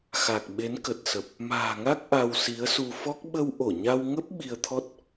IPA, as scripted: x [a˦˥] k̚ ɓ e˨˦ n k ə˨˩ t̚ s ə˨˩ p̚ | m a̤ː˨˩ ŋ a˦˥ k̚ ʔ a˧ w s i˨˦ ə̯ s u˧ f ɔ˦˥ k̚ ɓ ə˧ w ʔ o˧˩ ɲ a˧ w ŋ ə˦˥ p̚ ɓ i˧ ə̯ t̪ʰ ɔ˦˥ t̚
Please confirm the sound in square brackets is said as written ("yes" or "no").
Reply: no